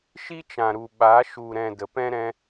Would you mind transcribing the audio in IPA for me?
ʃ i˦ t͡ʃ ã˨ ɾ u˨ ɓ a˨˦ ʃ u˨ ɾ ɛ̃˨ d ə˨ p ɛ̃˦ ɾ ɛ̃˧

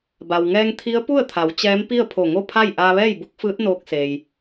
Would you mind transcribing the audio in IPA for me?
b a˩ w ŋ ɛː˧ ŋ t̪ʰ i˧˥ ə̯ p u˥˨ ə̯ t̪ʰ a˩˧ w t͡ɕ ɛː˧˥ m p i˥˨ ə̯ pʰ o˧˩ ŋ o˥˨ pʰ a˥˨ j ʔ aː˧ ʋ ɛː˥˨ j b u˧˥ k̚ f ɯː˧˥ t̚ n oː˧ k̚ s eː˩ j

